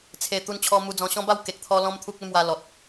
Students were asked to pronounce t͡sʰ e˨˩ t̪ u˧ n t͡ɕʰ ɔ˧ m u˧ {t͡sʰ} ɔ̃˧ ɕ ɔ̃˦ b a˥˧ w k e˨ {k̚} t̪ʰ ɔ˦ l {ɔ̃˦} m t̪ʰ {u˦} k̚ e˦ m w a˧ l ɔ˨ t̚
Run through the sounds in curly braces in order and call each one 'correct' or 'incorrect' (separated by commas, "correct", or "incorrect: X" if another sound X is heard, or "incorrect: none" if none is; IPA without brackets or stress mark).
incorrect: d͡z, correct, correct, correct